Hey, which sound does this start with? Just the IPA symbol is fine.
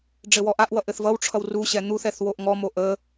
ɖ͡ʐ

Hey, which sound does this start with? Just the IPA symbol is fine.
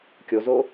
kʲ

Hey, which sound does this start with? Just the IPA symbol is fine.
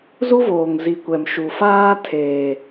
z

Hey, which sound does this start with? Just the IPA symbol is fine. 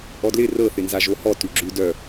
ʔ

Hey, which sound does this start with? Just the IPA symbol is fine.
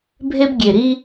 bʱ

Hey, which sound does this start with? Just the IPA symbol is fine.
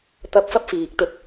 t̪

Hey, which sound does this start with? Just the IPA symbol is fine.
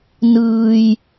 n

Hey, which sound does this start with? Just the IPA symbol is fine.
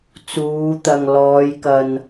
t͡s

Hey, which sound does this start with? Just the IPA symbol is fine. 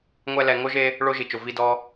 ŋʷ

